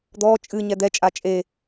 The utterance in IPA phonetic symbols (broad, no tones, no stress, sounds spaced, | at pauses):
d̪ ɔ t͡ʃʼ ɨ ɲ ɛ d̪ ɛ t͡ʃʼ a t͡ʃʼ e